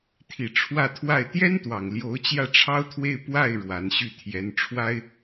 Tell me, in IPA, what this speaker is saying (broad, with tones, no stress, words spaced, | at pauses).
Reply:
t̪ʰi˨˩ ʈ͡ʂʰwä˥˧t̪ʰwa˥˩ɪ̯ t̪jɛ˥nt̪wɑ˨˩ŋ ljo˧˥ʊ̯t͡ɕjä˥˩ʈ͡ʂʰɑ˥ʊ̯t̪ʰwe˥˧ɪ̯ pwa˥˩ɪ̯ ɻwa˧˥nɕy˥˩ t̪ʰjɛ˧˥nʈ͡ʂʰwa˥ɪ̯